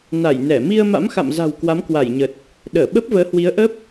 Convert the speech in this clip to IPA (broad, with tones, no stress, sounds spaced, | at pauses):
n a˧˩ j n ɛ˧˩ m i˧ ə̯ m a̰˧˥ m x a̰˧˨ m z a̤˨˩ w k w a˨˦ m k w a˧˩ j ɲ ə˨˩ t̚ | ɗ əː˧˩ ɓ ə˦˥ p̚ v əː˨˦ h w i˨˦ ə̯ ʔ ə˦˥ p̚